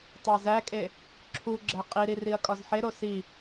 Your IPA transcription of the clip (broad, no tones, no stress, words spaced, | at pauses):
tˤæzækʼe | ǁʰuɡ͡ǁæ qʼiɾi riɐ̯kʼɒzħeɾo si